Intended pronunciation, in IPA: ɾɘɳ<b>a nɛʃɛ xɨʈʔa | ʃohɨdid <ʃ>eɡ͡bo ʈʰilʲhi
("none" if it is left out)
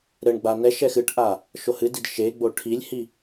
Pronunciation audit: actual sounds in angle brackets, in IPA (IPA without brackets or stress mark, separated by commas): ɡ͡b, ʃ